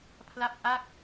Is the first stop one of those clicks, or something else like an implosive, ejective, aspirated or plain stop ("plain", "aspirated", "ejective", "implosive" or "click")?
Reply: aspirated